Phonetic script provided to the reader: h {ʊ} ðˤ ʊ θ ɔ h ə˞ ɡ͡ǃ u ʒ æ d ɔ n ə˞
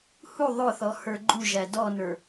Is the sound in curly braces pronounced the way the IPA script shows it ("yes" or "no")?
no